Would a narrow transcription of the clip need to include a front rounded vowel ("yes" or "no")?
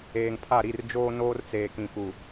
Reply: no